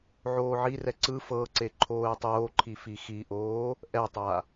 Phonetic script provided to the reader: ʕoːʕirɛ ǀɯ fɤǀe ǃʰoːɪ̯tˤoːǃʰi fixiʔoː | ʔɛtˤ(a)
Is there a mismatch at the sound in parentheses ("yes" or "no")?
no